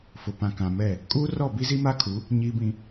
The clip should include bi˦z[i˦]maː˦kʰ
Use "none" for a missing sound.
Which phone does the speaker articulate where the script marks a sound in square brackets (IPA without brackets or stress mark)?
i˦